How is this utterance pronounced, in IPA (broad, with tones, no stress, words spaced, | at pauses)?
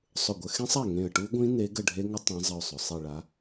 sˤʊ˧˩ɡʷə˨˦ xẽ˦˥sˤa˥˩ ŋẽ˧˩ə̯ʈu˦˥ɡʷĩ˦˥ ne˨˦ ɡə˥˩ɖʱe˦˥ ŋə˦˥ tˤẽ˨˦zˤə˧˩ʊ̯sˤʊ˩ sˤi˧˩ɭa˨˦